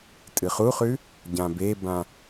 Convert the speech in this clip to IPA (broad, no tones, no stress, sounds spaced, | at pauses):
tʼ ɨ χ u χ ʉ | ɟ ã b e b ã